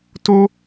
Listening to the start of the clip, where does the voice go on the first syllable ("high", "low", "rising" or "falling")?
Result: high